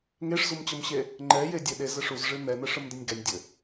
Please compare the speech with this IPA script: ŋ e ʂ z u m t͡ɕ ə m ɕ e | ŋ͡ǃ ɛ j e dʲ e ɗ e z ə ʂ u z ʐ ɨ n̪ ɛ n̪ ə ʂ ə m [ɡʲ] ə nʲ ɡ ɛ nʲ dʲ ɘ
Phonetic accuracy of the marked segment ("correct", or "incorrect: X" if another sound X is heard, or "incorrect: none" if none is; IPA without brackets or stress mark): incorrect: d